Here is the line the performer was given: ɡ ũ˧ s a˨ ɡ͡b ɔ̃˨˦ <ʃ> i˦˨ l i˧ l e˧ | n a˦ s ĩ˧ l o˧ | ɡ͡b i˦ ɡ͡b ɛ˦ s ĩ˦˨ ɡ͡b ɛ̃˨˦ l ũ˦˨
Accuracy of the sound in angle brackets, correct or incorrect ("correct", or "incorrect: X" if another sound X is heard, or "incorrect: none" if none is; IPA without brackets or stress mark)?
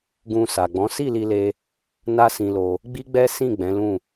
incorrect: s